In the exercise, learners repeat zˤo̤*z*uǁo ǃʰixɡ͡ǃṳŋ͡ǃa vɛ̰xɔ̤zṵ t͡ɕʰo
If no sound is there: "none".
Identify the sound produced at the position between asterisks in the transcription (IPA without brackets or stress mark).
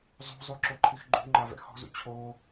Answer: zˤ